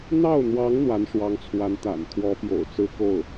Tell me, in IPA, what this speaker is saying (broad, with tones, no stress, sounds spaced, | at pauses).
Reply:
n̪ ɑ˥˩ ʊ̯ n̪ w ɑ˧˥ ŋ n̪ w a˧˥ n ʂ w ɑ˧˥ ŋ t͡sʰ w a˧˥ n t̪ a̰˨˩ n t̪ʰ w ɔ˧˥ p j o̰˨˩ ʊ̯ t͡s ɹ̩˥ k o˥˩ ʊ̯